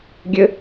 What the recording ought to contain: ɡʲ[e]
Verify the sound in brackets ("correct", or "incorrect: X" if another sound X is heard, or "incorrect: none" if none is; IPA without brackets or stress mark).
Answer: incorrect: ɘ